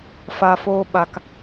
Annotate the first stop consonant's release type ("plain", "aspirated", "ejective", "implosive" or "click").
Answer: implosive